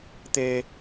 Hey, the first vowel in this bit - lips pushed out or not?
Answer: no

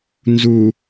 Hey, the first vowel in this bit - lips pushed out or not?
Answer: yes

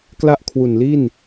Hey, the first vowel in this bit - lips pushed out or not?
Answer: no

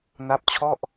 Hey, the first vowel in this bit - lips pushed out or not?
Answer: no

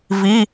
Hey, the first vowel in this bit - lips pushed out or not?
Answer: no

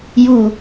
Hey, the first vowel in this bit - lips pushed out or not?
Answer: yes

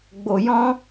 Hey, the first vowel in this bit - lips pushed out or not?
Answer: yes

